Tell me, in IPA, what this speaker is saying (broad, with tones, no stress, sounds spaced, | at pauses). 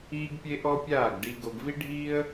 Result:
iː˦ ɡ pʲ e˦ ʔ ɔ˦ pʲ aː˦˨ ɡ ɖ i˧ ɡ o˧ ɡ v i˦ ɖʱ iː˦ ə̯